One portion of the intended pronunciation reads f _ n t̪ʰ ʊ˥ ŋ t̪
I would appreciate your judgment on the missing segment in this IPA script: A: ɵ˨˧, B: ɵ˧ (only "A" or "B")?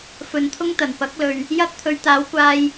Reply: A